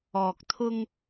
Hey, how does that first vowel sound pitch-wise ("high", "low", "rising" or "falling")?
low